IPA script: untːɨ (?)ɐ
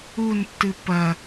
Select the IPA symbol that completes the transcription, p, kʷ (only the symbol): p